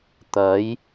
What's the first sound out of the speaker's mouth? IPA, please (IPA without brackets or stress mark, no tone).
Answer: t̪